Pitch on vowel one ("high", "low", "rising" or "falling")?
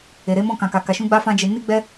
low